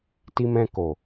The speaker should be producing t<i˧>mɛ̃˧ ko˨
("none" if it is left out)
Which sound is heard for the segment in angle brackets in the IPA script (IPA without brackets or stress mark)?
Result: i˧